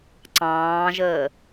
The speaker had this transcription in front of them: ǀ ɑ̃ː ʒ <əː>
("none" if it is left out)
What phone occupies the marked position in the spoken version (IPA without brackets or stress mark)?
əː